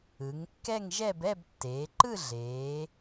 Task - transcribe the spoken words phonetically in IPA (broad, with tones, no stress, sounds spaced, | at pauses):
ɯ˩˧ ŋ kː ɛ˥˧ ŋ ʒ ɛ˥˧ b ɛ˥˧ b tː eː˩˧ ǃ ɯ˥˧ ɮ eː˩˧